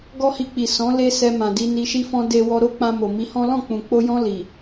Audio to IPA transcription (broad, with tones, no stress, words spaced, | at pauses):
ɡɔ˦hi˧k͡pi˨ sɔ̃˨˦ le˦ sɛ˧ mã˨di˧ ni˧ʃi˦fɔ̃˦ de˧ wɔ˧ɾo˦k͡pã˧mo˨ mi˧hɔ̃˦ lɔ̃˦˨k͡pũ˨k͡po˧jɔ̃˧ li˨